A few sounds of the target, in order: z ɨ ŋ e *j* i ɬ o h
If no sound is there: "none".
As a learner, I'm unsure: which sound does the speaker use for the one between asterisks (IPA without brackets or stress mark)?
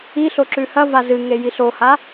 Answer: j